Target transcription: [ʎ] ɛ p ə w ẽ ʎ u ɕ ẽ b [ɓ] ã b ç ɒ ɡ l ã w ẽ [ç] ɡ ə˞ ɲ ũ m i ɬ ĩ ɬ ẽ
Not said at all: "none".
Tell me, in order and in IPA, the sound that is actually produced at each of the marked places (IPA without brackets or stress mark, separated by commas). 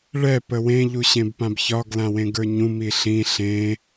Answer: ɭ, p, none